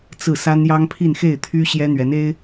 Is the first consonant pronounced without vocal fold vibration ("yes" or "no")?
yes